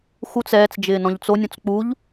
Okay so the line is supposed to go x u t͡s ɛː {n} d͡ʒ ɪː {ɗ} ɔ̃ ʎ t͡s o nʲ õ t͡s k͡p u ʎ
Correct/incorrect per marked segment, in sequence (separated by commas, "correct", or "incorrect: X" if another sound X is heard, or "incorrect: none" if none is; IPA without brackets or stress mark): incorrect: t͡s, incorrect: n